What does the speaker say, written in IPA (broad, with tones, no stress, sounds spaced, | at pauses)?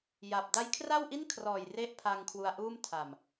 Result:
j a˨˩ p̚ d a˦˥ j kʰ r a˥˩ w ʔ i˥˩ n kʰ r ɔː˨˩ j r e˥˩ ʔ pʰ a˧ ŋ kʰ w u˧ a̯ ʔ uː˥˩ m tʰ a˨˩ m